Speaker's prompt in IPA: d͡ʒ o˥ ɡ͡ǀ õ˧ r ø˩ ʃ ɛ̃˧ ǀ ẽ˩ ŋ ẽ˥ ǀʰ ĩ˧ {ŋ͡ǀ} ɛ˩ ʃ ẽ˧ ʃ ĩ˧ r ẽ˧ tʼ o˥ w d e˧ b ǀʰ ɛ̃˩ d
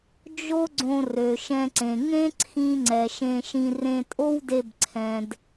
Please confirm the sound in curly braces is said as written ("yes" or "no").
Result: yes